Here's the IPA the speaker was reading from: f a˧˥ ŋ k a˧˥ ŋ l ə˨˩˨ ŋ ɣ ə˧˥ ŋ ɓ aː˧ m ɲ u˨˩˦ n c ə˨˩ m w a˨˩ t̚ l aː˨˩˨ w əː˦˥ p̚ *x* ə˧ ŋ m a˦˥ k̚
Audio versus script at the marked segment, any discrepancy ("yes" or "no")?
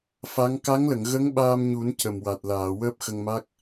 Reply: no